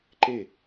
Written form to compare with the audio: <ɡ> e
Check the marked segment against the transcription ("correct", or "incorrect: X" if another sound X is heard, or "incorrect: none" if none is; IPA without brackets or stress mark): incorrect: ǃ